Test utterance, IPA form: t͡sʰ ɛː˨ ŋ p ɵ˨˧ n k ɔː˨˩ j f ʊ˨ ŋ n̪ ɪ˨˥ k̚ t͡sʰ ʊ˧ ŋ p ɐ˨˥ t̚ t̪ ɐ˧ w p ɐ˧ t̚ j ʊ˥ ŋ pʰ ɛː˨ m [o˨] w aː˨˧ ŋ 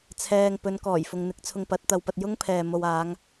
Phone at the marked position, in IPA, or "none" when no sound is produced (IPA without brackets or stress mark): o˨